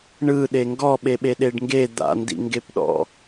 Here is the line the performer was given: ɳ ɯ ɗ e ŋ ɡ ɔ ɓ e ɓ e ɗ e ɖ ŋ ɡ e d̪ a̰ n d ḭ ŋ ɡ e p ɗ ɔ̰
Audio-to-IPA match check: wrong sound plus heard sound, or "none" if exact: none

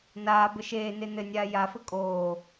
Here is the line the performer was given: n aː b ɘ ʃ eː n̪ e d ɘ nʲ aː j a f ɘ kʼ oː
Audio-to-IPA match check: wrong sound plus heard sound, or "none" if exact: d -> n̪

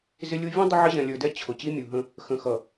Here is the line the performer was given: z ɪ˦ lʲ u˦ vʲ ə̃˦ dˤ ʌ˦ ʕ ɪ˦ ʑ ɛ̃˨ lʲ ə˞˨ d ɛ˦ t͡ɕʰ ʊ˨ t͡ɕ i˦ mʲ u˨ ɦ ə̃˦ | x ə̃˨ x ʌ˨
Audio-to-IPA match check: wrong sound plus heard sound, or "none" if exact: none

